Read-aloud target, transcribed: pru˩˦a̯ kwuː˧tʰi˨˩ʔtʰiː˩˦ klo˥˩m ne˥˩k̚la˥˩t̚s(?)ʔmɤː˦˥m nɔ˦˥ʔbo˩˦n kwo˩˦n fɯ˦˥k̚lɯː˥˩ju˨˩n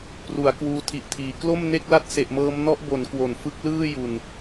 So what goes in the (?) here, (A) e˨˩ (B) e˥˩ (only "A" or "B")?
A